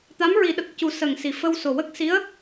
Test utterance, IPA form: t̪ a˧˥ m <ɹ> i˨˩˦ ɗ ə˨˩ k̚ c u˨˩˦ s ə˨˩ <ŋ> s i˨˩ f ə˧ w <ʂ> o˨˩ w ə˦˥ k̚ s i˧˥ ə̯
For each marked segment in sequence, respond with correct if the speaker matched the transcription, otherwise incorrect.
correct, correct, incorrect: s

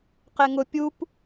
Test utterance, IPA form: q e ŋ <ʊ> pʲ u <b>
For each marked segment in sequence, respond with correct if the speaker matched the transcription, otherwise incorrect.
correct, incorrect: p

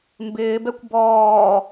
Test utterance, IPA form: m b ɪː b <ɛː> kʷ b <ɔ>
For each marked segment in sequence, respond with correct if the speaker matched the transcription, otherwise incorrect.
incorrect: ɛ, incorrect: ɔː

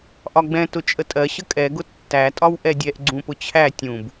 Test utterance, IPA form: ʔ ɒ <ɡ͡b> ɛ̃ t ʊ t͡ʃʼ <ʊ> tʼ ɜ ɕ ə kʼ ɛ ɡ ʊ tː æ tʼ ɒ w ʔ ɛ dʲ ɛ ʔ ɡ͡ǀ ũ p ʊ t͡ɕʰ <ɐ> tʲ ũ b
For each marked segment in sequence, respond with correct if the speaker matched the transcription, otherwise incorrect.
correct, incorrect: ə, incorrect: æ

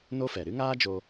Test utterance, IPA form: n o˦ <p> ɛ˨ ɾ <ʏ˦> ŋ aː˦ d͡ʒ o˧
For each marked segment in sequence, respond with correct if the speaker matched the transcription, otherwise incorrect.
incorrect: f, incorrect: ɨ˦

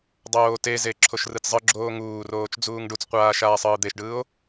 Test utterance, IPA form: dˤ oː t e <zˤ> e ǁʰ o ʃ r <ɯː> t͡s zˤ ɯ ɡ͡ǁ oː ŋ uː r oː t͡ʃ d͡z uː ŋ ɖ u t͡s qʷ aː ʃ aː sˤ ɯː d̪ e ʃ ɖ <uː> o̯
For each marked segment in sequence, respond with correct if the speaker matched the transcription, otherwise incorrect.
incorrect: z, incorrect: ɯ, incorrect: ɯː

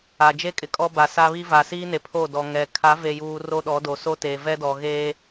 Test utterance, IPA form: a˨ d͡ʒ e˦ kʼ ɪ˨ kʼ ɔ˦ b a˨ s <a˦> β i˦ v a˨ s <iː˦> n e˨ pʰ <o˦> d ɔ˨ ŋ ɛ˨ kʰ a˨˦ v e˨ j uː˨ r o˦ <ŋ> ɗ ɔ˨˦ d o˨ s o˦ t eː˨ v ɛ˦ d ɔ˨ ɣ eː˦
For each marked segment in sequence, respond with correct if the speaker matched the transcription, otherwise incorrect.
correct, correct, incorrect: o˦˨, incorrect: none

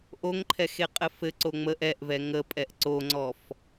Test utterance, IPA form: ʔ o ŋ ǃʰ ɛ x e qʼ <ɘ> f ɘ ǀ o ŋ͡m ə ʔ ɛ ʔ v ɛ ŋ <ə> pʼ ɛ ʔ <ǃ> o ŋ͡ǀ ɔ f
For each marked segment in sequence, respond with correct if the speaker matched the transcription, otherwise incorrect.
correct, correct, incorrect: ǀ

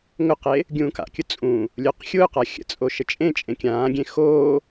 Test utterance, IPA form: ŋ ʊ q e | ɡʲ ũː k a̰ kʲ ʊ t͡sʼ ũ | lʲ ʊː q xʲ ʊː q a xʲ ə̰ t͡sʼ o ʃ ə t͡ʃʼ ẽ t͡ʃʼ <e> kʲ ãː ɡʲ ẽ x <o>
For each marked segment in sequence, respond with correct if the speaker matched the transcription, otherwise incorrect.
incorrect: ẽ, incorrect: oː

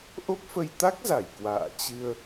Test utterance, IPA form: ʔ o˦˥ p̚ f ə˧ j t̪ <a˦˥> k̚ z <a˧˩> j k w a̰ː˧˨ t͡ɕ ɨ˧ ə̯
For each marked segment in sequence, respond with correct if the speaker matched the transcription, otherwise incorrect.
correct, correct

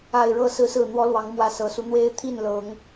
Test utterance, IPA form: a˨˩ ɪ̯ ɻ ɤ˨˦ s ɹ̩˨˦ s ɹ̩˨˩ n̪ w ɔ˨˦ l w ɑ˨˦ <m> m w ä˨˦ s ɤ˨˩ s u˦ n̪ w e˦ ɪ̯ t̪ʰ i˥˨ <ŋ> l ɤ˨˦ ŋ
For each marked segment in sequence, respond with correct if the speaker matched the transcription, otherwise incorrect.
incorrect: ŋ, incorrect: n

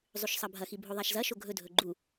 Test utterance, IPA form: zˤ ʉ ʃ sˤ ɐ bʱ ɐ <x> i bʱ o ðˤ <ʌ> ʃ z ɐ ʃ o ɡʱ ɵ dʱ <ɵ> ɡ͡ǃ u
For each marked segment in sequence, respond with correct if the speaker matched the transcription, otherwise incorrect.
correct, incorrect: a, correct

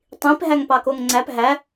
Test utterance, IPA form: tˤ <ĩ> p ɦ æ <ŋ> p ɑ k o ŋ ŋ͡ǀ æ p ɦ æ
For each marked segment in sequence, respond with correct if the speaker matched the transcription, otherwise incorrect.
correct, correct

